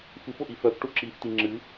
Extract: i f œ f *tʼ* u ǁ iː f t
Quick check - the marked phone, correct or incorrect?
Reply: incorrect